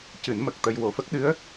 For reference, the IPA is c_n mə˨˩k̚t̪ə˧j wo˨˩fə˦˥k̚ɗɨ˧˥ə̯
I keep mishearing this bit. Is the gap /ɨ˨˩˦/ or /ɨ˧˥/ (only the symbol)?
ɨ˨˩˦